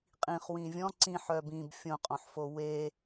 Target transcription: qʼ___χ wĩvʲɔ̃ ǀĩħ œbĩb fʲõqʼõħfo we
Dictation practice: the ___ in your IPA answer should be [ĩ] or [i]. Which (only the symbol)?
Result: ĩ